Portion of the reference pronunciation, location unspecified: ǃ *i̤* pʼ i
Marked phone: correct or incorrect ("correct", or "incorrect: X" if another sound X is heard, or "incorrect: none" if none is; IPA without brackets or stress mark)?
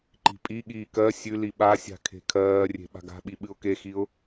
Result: correct